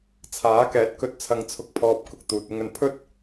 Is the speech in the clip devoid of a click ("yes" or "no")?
yes